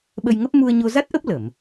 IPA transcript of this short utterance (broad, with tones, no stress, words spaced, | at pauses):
ɓə˧jŋə˦˥p̚ mu˧ə̯ɲo˧za˦˥t̚ʔə˦˥p̚ lə˧˩˨m